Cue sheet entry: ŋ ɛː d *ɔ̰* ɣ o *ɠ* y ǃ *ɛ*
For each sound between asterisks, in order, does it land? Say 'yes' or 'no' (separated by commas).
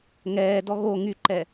no, no, yes